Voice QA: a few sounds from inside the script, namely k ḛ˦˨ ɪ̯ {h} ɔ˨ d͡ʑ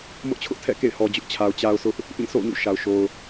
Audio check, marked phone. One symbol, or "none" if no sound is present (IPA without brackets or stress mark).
h